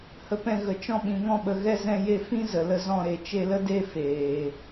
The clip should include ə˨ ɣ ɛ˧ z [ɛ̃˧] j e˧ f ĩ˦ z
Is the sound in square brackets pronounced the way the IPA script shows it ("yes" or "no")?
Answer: yes